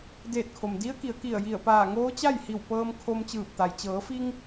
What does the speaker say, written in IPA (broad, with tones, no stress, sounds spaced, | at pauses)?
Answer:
d eː˧˩ t̚ kʰ o˩ m d i˧˥ ə̯ k i˩˧ ə̯ k i˧˩ ə̯ j i˧˩ ə̯ p aː˧˩ ŋ oː˧˥ t͡ɕ a˥˨ j h i˧˩ w p ɤː˧ m kʰ o˧ m t͡ɕ ɯː˧˩ p̚ t̪ a˩ j t͡ɕ ɤː˩˧ f i˧ ŋ